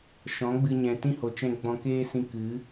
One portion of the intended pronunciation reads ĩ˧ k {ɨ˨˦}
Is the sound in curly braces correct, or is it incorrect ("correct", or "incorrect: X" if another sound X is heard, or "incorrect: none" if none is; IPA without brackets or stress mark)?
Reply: correct